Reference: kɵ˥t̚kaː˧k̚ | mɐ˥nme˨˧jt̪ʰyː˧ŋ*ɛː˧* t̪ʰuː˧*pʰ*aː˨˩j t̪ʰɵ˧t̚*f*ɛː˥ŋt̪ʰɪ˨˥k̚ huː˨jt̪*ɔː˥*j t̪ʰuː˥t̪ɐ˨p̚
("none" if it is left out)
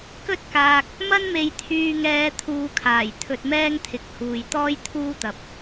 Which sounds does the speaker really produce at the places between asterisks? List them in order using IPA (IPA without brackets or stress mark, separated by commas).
ɛː˧, kʰ, m, ɔː˥